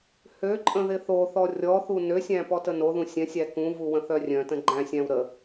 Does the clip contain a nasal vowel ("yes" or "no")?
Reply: yes